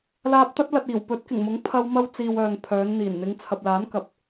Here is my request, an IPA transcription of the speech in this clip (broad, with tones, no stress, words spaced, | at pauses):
laː˧p̚t̪ɐ˥t̚ lɐ˧t̚ iː˨˩wpɵ˨˥t̚kɪ˨˩ŋmʊ˨˥ŋ pʰɐ˧wmɐ˧wt͡siː˨w œː˨ŋpʰœː˨˧nn̪iː˨˩n n̪ɪ˨˧ŋt͡sʰɐ˨p̚laː˨˥n kɐ˨p̚